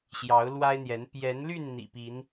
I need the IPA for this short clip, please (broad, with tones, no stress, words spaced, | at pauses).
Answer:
ɕjɑ˨˦ʊ̯lwa˦ɪ̯n̪jɛ˨˦n pjɛ˨˦nly˥˨n n̪ḭ˨˩pi˨˦n